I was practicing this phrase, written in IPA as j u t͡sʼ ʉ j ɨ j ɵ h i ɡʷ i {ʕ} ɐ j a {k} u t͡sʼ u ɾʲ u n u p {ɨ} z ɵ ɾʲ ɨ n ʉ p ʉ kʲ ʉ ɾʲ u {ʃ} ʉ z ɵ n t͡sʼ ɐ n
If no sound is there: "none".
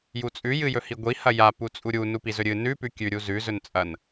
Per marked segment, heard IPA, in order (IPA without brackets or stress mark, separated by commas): h, p, i, z